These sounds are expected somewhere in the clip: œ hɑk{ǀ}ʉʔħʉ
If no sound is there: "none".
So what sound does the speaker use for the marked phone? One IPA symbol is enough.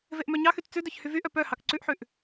ǀ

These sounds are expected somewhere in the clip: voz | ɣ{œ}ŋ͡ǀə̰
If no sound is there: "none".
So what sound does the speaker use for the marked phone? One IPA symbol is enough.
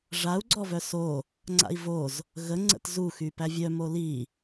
ə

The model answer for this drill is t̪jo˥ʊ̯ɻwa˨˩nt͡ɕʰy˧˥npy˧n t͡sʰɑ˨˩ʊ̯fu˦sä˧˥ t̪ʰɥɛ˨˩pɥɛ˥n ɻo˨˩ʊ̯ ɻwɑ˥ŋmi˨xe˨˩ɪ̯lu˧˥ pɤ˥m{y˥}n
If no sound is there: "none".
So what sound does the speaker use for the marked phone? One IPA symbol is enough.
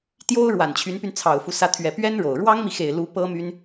y˥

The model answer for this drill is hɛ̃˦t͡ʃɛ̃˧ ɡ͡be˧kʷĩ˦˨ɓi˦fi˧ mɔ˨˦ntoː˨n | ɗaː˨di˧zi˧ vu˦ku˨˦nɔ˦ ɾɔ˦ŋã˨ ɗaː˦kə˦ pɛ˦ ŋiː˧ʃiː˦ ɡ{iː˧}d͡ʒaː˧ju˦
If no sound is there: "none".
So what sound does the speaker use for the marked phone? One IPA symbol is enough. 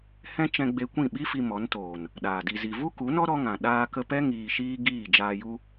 iː˦˨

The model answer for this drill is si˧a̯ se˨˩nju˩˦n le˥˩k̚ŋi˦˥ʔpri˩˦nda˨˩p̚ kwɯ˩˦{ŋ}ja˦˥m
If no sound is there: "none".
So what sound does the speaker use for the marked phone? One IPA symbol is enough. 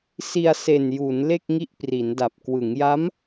ŋ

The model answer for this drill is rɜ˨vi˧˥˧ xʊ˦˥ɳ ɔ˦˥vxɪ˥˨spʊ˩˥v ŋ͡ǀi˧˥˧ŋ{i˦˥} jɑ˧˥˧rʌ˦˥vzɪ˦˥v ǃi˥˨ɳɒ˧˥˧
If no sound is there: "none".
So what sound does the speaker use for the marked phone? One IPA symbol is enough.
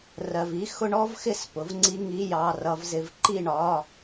i˧˥˧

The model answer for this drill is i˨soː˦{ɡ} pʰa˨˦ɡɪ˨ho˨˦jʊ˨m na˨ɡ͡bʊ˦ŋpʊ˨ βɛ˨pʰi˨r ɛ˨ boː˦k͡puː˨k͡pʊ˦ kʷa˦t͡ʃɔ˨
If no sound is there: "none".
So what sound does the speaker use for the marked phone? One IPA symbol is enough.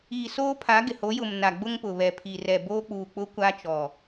none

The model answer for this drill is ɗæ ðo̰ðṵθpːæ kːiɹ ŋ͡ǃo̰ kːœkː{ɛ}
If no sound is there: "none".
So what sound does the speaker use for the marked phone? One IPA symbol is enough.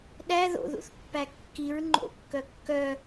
œ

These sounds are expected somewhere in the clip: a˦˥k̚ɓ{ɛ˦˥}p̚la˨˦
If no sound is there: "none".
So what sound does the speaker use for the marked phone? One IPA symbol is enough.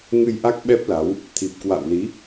ɛ˦˥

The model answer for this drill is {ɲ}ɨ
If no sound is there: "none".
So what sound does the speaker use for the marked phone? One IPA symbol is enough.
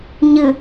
ɲ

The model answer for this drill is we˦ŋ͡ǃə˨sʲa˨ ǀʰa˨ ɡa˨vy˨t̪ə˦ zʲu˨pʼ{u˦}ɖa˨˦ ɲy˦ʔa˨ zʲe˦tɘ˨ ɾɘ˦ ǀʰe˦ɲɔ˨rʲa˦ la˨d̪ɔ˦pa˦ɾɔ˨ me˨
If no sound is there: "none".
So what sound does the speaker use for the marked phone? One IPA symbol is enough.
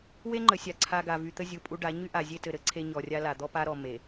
u˦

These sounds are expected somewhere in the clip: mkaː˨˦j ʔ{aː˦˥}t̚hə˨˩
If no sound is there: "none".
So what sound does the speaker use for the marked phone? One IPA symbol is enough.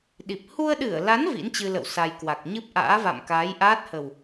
aː˦˥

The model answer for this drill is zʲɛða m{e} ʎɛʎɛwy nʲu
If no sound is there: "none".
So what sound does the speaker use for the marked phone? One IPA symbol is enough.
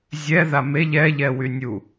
e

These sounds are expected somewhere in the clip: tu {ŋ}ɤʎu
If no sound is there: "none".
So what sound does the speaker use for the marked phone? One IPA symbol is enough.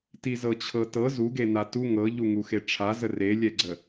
ŋ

